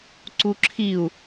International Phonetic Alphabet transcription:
ǀ u ǁʰ i u̯

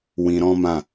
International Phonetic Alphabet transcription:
w ĩ˧ ɾ ɔ̃˦ m ã˦˨

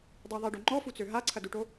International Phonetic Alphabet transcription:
dˤ i ðˤ i ɖ o ŋ͡ǃ ɔ f u t͡s ø ɦ a ǀʰ ɐ d u ʈ o

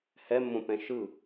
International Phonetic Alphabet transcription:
h ɛ mː õ p ɛ̃ ʃ ɯ

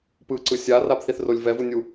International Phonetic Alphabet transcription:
p ɯ ǀ ɯ sʲ a r a b θ i θ r o lʲ v ɛ v u nʲ u

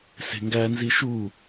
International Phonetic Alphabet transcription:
s e̤ ŋ ɡ æ n z i ʃ u

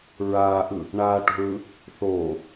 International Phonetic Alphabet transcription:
ɹ aː ʔ ɯ | ɳ aː ʈ ṳ ɹ ɯ | θ oː

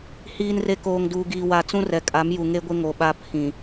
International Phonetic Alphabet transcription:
h iː˨ n r e˨ k oː˨ ŋ d uː˨ ɡ iː˨ w a˨ t͡s ũ˦ r ɛ˨ kʼ a˨˦ m j u˨ ŋ e˦ ɡʷ ɪ˦ ŋ o˨ ɓ a˦ pʰ ĩ˨

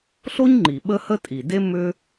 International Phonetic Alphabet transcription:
ɬ o˦ ɲ ŋ͡ǃ i˩ ɓ ə˦ h ə˦ tʼ i˩ d e˦ m ʏ˦

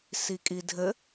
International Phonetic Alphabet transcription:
s i kʼ i dʱ ɘ

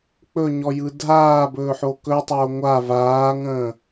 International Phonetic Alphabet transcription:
k͡p ɵ ɲ ɔ j ɯ dʱ aː b ɵː ħ o k ɵ tˤ oː ŋʷ a v aː ŋ ə̃ː

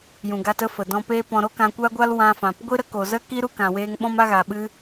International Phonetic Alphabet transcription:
j ũ˨ ɡ a˧ t ə˦ f ə˨ d ɔ̃˧ p eː˦ p ɔ̃˧ ɾ o˦ k ã˧ kʷ a˦ ɡʷ a˦ l w ã˧ f ã˨ p ɡʷ i˦ ɾ ə˦ k o˨ z ə˦ k i˦ ɾ u˦ k ã˨ w eː˧ ŋ ɓ ɔ̃˦ m a˦ ɣ a˨ ɓ ɨ˦

